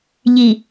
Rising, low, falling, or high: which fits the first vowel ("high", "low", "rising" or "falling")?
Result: low